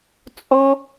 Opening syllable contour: high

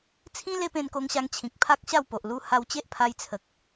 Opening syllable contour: high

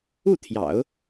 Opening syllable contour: falling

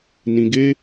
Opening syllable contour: low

